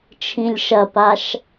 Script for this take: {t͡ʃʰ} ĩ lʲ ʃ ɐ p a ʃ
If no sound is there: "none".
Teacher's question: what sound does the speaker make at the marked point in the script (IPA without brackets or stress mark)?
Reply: t͡ʃʰ